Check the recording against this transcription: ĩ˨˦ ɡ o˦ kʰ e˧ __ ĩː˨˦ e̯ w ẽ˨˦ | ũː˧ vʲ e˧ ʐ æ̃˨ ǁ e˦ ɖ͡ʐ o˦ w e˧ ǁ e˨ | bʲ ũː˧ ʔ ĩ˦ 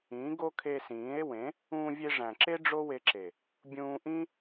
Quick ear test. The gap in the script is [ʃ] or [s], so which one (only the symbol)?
s